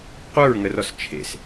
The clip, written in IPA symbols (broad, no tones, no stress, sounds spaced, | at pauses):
qʷ ə˞ ɹ ŋ ə r ɔ s t͡ʃʰ ḛ s